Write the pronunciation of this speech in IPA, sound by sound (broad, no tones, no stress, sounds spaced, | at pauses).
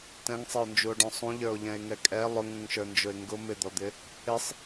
t ɛ̃ ŋ sˤ ɪ o̯ n d͡ʒ u o̯ ɖ ɔ̃ sˤ ũ ʎ ə˞ o̯ ʎ ɛ̃ e̯ ŋ ɛ kʼ ɛ lˠ ʊ ŋ ũ ŋ ʃ ə˞ n d͡ʒ ʊ e̯ ŋ ɡ ʊ m ɪ d̪ ɔ d̪ ɪ | ɪ sˤ